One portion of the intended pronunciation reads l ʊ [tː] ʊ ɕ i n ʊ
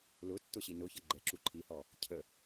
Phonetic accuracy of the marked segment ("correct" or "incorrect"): correct